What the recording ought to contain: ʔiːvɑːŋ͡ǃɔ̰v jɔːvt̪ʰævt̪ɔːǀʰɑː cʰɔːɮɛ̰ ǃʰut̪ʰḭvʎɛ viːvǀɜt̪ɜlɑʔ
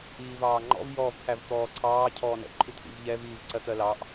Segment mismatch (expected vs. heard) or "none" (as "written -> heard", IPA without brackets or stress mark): ɮ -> n